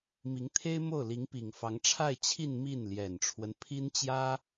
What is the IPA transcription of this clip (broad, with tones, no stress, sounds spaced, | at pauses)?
m i˧˥ ŋ t̪ʰ e˥ ɪ̯ m o˥˩ ʊ̯ l i˧˥ ŋ p i˨˩ ŋ f ɑ˧˥ ŋ ʈ͡ʂʰ a˥˧ ɪ̯ t͡ɕʰ i˥˧ n m i˥˩ n l j ɛ˨˩ n ʈ͡ʂʰ w ə˦ n pʰ i˥ n t͡ɕ j ä˥